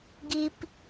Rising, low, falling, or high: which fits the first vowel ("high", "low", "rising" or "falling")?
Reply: high